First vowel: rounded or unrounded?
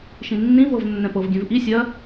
unrounded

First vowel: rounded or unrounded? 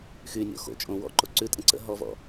rounded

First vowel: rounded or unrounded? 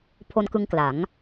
rounded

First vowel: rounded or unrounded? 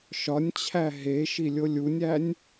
rounded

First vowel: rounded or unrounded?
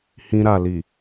unrounded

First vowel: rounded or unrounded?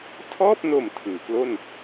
rounded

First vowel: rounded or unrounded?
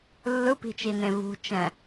unrounded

